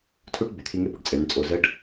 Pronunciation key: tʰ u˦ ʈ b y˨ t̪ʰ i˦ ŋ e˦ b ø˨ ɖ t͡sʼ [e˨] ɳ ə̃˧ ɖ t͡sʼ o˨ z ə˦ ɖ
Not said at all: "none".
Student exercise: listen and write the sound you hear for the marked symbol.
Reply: e˨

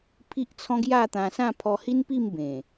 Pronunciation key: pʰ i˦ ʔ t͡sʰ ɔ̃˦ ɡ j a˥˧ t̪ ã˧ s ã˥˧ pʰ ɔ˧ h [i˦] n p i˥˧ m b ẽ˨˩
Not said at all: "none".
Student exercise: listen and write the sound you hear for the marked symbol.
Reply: i˦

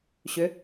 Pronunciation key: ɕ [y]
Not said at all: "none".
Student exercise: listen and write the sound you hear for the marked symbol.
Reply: ʏ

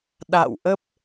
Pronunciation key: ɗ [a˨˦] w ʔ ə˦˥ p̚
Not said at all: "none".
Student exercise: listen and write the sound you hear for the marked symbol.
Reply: a̰˧˨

